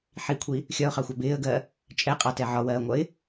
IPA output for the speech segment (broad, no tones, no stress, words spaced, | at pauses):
ħikʷʰi | xʲɒʊ̯χɑxʷɑ bɪːə̯ɡɜ | t͡ʃʼɛqʼɑtɛ ʕɒwɜːŋʷʌɪ̯